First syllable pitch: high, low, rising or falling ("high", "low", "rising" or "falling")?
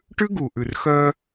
high